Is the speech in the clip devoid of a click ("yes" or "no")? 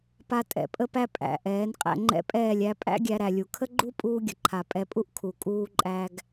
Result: no